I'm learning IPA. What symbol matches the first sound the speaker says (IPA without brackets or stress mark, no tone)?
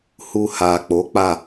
h